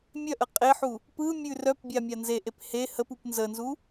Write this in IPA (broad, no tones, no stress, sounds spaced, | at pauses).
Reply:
mʲ œ ʔ ə qʼ e ħ u | p ɯ mʲ ʉ r œ p bʲ a mʲ a n z e ʔ e p h e h ə p u p n z ə n z u